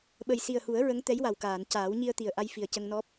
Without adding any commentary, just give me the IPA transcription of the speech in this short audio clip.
ɓ ə˨˩ j s i˨˩ ə̯ h u˨˩˦ ə̯ ɹ ə˧˥ ŋ t̪ ɛ˧˥ j w a˨˩ w k aː˨˩˨ n c aː˨˩˦ w ɲ i˧ ə̯ t̪ i˨˩ ə̯ ʔ a˧ j f i˨˩ ə̯ c ə˧ ŋ n ɔ˦˥ p̚

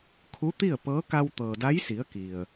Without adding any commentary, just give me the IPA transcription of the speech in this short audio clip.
kʰ u˧˥ t̪ i˥˨ ə̯ p ɤː˧˥ k a˧ w t̪ ɤː˩ d a˧˥ j s i˩˧ ə̯ k i˩ ə̯

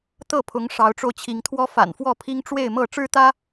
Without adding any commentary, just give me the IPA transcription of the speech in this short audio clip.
t̪ ɤ˥˨ pʰ ʊ˨˦ ŋ ʂ ɑ˨˦ ʊ̯ ʈ͡ʂ o˧ ʊ̯ t͡ɕʰ i˨˦ ŋ t̪ʰ w ɔ˦ f a̰˨˩ n f w ɔ˥˨ pʰ i˦ ŋ ʈ͡ʂ w e˥˨ ɪ̯ m ɤ˥˨ ʈ͡ʂ ɻ̩˦ t̪ ä˦

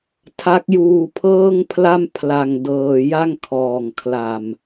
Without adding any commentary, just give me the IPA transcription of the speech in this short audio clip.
tʰ a˦˥ k̚ j uː˧ pʰ ɤː˥˩ ŋ pʰ l a˥˩ m pʰ l a˧ ŋ d ɤː˧ j a˥˩ ŋ kʰ ɔː˨˩ ŋ kʰ l a˨˩ m

